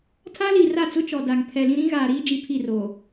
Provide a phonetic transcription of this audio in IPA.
tʰa˦li˨ra˦˨t͡sʊ˦ t͡ʃɔ˨da˨ŋpʰɛ˨lĩ˦ ɾĩ˦ɣaː˨ɾiː˦ d͡ʒi˨pʰi˦˨ro˨

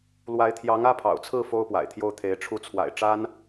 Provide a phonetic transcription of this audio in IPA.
lwa˧˥ɪ̯t̪ʰjɑ˧˥ŋ ä˥pʰɑ̰˨˩ʊ̯t͡sʰɹ̩˥˩ fo˥ʊ̯pwa̰˨˩ɪ̯t̪ʰjo˥˩ʊ̯t̪ʰe˧˥ɪ̯ ʈ͡ʂʰu˧˥t͡sʰwa̰˨˩ɪ̯ ʈ͡ʂa˥n

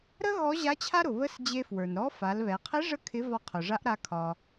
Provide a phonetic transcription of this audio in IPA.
ɾə˥ ɣɔ˧˥ʑa˧˥t͡ɕʰa˥ɾʊ˩ βə˧˥sd͡ʑe˧fwə˞˩nɾɔ˧˥ fa˩˧lβɛ˩˧ qʰe˧˥ ʐə˥kʰɪ˧˥ vɒ˧qʰʊ˩ʐa˧˥ʔ ɾa˧˥kʰɒ˧

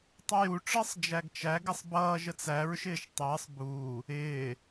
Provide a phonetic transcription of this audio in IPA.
tˤʊju ʈ͡ʂəːsˤd͡ʒæɡt͡ʃæ ɡɪsˤbʌː ʒət͡sæɹ ʃɪːʃtˤɪːsˤ buː | ɪː

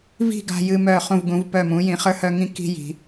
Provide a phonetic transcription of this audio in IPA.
vi̤˥˧ɡa̤˧jɨ˧ mœ˧˩χũ˧˩vɡũ˩˧v pœ˧˩mũ˩˧ jĩ˩˧χə˞˥˧hœ˥˧ŋĩ˥˧ ki̤˥ji̤˩˧

